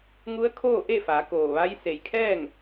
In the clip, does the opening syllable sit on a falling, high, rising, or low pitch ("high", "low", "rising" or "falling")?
rising